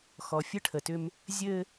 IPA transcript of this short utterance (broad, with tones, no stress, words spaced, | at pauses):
xɔ˨ fʲɘ˦ʈʰə˨tʏ˦m | zʲɘ˦